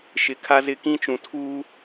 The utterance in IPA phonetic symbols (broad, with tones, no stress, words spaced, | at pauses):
ʃɪ˨kʰa˦zɪ˦˨ kĩ˦t͡ʃũ˨ tʰuː˦